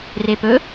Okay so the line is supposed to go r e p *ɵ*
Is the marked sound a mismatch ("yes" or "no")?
no